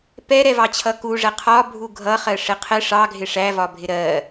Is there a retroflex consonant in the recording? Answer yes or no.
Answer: yes